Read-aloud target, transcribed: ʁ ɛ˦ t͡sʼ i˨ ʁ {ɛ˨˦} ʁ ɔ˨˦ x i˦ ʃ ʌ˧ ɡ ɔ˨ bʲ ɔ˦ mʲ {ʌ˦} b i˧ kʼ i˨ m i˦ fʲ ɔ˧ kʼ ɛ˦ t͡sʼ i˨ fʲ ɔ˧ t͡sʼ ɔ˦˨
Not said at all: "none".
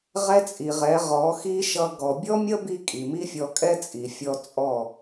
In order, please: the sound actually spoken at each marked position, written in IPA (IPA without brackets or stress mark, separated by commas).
ɛ˨˦, ʌ˦